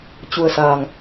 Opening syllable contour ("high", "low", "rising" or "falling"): low